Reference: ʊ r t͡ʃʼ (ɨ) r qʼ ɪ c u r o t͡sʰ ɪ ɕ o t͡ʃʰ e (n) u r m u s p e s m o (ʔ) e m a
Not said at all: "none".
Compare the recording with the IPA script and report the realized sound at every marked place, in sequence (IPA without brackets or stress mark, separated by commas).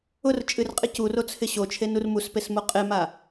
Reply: ɨ, n, qʼ